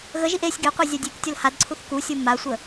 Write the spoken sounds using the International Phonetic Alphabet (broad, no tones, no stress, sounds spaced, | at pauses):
ɣ ə ʒ i ʔ e sʲ ɡ e qʷ e zʲ a dʲ e k tʲ ʌ l h a d ǀʰ u θ k u sʲ o m a sʷ ə